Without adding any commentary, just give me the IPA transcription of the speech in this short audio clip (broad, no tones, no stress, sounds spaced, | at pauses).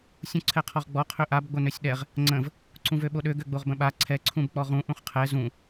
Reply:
sʲ ũ ǀʰ ɛ qʰ ɔ ʁ ɡ͡b ɔ qʰ ø ʔ a b ɡ͡b o n ø sʲ ɗ ɛ ʁ | ŋ͡ǀ ə̃ v | ǀ ũ v ø ɓ o ɗ ø ɡ ø ɡ͡b o ʁ b ə̃ ɓ a ǀʰ ɛ ǀʰ ũ b k͡p ɔ ʁ ũ ʔ ũ χ qʰ ɛ z ũ